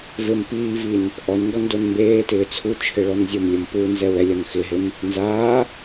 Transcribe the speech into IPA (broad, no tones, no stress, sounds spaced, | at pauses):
v e m p iː v i n | ʔ ɔ n ŋ ɡ ɔ n d o n m b eː t ɪː t͡sʰ u t͡ʃʰ ɪ ɭ ɔ n zʲ o m lʲ ʊ m p u n z ɛ w ɛ lʲ ɔ n x ɪ ɦ e m | n z aː